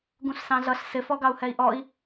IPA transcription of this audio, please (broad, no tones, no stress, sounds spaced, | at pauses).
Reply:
ɡ ũ ɬ s ɑ̃ ɮ ʌ ɬ s ɪ f ɔ ɡ ɑ u̯ h ɛ i̯ ʔ ɔ i̯